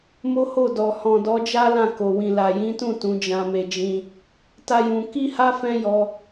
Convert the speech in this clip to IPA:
m o˦ h o˦˨ d ɔ˨ h ɔ̃˨ d ɔ˨˦ d͡ʒ a˦ l ã˦˨ k o˨ w ĩ˨ l a˨ j ĩ˨˦ t ũ˦˨ t ũ˨˦ d͡ʒ ã˧ m e˧ d͡ʒ ĩ˧ | t a˦ j ũ˧ k i˦ h a˦ f ɛ̃˦ j ɔ˧

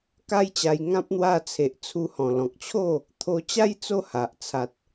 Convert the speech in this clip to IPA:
k a˦ j t͡ɕ a˧ j ŋ ã˦ p̚ n̪ w a˧ t͡sʰ e˨ ʔ t͡sʰ u˧ h ɔ̃˨˩ l ɔ̃˨ k̚ t͡ɕʰ o˥˧ | t̪ʰ o˧ t͡ɕ a˦ j t͡s o˥˧ h a˨ ʔ t͡sʰ a˨ t̚

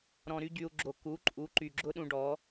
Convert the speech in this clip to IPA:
ɾ ɔ̃˨ ɾ y˧ ɟ y˨ u̯ ɡ͡ǁ o˨ k u˨˦ ǃʼ u˨˦ ǃ y˨ ɡ͡ǁ ʊ˦ ɗ ũ˧ ɖ ɔ˨˦

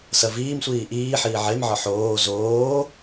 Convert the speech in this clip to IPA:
s ɐ v iː m sʷ iː ʔ iː ħ iː ʕ e m ʕ ɒ ħ oː z oː

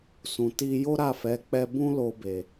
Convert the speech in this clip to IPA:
s ũ˨ t i˧ j o˦ ɾ a˦˨ f ɛ˨˦ k͡p ɛ˧ b ũ˦ l o˧ b e˨

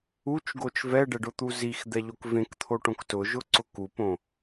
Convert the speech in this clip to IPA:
u t͡ʃ ɡ o t͡ʃ v ɛ ɖ ɛ ɖ ʊ t̪ u z i x d̪ ɛ ʎ o k v ẽ k t̪ʰ o ʈ õ k t ʊ ʒ ʊ ǀ ʊ k u p õ

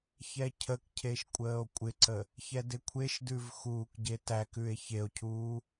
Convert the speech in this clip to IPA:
ç ɛ cʰ ə k cʰ e ʃ kʷʼ əː o̯ kʷʼ ɪ ǀ ə | ç ɛ d ɪ kʷʰ e ʃ d ʉ v x uː k ɟ e t æ k ʉ e̯ ç e o̯ cʰ uː

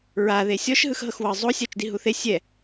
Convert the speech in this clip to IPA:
ɹ a ð e sʲ ɔ ʃ ɦ ɯ x ɦ ɤ x w ɤ zˤ o sʲ a t͡ʃ d i ɦ u θ e sʲ ɛ

